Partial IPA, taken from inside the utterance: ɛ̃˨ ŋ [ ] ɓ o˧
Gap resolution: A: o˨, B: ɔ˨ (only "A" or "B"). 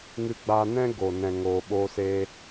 A